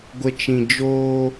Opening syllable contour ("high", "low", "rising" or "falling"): high